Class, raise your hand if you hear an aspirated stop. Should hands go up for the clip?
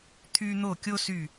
yes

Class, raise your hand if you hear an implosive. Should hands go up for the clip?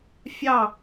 no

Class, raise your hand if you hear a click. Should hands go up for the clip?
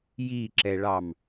yes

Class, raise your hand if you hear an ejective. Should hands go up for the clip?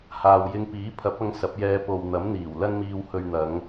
no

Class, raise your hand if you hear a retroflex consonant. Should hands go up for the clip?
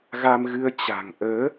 no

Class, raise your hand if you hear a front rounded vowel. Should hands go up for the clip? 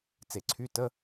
yes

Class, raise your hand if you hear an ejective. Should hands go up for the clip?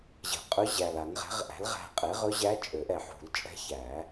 yes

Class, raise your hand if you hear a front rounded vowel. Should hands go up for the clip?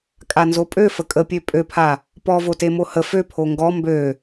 yes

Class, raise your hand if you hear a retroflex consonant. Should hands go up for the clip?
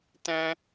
no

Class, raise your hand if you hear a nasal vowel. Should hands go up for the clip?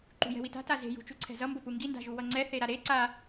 no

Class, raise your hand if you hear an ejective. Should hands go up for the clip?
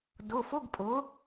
yes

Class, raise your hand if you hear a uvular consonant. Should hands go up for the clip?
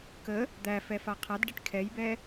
yes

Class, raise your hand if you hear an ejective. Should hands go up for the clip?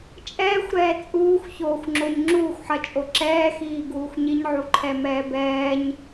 yes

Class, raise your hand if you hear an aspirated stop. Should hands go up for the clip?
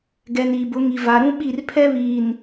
yes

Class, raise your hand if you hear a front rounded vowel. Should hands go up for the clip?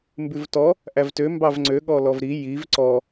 yes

